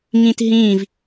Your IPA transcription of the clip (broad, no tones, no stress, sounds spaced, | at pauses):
ŋ ĩ t ɦ ĩ v